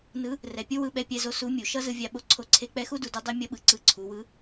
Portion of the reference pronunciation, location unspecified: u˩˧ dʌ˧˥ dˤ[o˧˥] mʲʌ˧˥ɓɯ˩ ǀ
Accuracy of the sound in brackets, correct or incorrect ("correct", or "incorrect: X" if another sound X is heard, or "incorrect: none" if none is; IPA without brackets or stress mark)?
correct